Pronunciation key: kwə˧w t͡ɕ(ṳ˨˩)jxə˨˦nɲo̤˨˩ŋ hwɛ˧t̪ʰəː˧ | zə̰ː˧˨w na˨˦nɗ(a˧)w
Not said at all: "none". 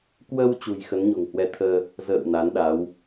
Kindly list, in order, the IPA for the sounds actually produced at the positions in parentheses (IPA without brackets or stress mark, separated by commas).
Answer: ṳ˨˩, a˨˦